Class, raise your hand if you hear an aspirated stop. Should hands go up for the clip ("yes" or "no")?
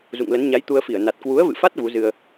no